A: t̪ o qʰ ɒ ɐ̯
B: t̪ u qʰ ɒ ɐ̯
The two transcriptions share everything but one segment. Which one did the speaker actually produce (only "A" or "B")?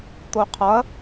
A